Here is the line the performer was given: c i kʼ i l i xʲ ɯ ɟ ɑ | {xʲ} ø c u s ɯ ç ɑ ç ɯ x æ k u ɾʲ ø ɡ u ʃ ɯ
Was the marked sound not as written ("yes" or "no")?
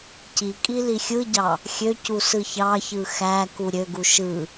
no